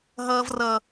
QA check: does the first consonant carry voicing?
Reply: yes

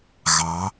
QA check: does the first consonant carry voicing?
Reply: yes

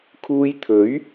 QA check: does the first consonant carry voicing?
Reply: no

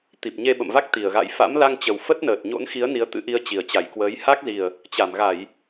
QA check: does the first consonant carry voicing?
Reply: no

